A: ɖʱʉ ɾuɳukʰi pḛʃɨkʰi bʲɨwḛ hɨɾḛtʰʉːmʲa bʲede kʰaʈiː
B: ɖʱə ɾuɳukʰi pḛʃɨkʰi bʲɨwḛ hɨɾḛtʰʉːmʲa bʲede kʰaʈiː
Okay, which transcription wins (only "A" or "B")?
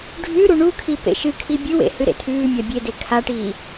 A